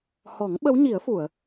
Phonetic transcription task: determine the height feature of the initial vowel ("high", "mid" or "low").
mid